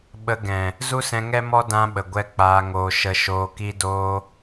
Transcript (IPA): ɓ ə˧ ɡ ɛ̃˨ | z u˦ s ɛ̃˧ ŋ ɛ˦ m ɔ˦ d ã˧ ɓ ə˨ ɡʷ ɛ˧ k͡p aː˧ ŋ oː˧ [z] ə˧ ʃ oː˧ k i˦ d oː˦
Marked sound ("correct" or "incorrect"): incorrect